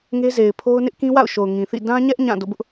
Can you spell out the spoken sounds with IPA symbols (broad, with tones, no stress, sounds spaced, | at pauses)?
ŋ e˦ z e˨ ɪ̯ pʰ o˦ ʊ̯ n ɪ˦ ʔ k ĩ˦ w a̰˦˨ ʊ̯ ʃ o˨ ʊ̯ ŋ ĩ˨ θ ḭ˦˨ d ã˦ ɲ ɛ˦ ʔ ɲ ã˦˨ d o̰˦˨ b ʊ˦ ʔ